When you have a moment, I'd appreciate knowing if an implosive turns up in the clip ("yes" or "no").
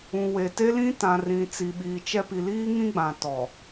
yes